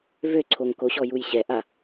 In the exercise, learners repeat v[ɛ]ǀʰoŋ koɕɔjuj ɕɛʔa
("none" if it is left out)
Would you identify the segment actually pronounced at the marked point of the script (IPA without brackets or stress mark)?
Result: ø